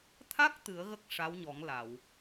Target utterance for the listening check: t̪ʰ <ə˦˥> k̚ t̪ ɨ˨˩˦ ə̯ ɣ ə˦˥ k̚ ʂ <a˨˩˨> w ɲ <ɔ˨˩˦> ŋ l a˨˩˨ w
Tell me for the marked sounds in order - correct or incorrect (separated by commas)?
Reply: incorrect, incorrect, correct